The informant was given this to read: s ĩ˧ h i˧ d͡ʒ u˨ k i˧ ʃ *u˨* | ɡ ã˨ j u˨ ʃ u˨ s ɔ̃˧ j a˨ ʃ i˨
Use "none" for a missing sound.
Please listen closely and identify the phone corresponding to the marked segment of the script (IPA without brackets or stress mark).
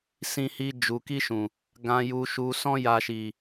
ũ˨